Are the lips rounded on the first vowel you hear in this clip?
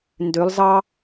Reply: yes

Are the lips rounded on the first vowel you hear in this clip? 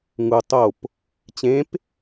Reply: yes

